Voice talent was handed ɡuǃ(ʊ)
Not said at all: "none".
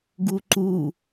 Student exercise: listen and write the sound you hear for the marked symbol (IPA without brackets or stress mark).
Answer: u